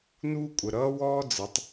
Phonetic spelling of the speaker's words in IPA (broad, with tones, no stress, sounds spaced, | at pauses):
n uː˦ kʷʼ ə˨ ɾ ʌː˦ w ɔː˦ d͡z ə˨˦ tˤ